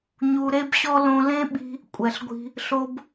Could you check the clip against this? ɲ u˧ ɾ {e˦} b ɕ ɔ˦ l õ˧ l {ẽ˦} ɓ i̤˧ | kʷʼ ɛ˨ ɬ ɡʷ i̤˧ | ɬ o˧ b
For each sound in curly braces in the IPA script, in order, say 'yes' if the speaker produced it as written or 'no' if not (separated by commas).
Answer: yes, yes